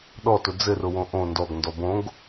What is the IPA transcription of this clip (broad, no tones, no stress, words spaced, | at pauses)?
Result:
ɗɔtʊ d͡zɘrʊwõ ʔõ ndɔɡndɔ bõɡ